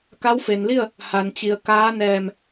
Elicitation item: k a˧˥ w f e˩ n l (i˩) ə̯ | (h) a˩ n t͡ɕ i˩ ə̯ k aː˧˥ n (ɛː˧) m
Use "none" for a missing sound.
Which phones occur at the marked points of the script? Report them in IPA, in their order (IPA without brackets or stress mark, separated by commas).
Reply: i˥˨, h, ɛː˧˩